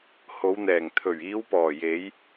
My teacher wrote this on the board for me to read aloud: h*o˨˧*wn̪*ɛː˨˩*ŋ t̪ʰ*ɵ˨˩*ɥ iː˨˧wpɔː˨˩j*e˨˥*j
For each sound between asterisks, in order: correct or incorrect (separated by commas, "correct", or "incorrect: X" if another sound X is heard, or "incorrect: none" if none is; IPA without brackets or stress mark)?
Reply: correct, correct, correct, incorrect: e˨˧